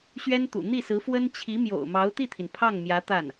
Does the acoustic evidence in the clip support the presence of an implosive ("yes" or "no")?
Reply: no